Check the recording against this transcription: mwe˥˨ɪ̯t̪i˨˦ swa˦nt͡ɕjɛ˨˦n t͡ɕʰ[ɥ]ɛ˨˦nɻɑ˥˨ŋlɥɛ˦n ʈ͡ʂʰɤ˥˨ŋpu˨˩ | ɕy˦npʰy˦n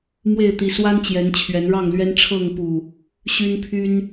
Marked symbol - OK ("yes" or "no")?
yes